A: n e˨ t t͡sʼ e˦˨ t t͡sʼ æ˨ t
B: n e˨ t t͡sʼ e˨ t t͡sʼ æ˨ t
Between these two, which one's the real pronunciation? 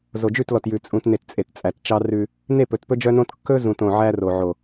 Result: B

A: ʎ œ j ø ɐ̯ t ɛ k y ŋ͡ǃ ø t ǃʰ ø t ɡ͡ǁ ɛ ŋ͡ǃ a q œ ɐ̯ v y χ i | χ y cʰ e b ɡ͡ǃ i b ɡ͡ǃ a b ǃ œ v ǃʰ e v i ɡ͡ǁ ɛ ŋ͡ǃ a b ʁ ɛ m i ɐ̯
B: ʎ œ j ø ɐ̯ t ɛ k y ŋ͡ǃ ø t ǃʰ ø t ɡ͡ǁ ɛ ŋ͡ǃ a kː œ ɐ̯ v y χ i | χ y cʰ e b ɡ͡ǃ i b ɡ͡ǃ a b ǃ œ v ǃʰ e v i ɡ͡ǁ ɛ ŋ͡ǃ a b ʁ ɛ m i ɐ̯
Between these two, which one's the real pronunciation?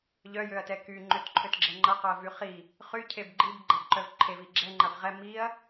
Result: A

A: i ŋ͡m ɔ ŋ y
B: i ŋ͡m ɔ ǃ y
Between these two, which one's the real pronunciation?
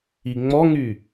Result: A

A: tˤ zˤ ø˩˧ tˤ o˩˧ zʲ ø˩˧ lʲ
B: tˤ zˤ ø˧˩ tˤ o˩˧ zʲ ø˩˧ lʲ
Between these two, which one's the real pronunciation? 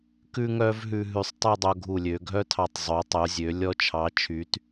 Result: A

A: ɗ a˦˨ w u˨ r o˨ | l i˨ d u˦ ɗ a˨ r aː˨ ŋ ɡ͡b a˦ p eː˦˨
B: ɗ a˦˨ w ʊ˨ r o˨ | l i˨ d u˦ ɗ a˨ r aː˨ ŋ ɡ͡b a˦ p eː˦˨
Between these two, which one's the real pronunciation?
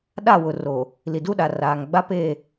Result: B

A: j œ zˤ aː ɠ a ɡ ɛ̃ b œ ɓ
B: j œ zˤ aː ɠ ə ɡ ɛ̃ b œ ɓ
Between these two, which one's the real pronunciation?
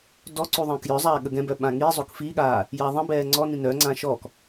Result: B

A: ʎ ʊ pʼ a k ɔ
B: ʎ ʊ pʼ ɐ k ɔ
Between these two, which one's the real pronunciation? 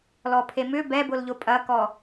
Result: B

